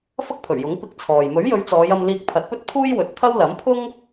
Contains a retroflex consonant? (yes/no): no